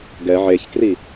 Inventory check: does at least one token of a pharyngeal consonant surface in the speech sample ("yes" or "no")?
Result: yes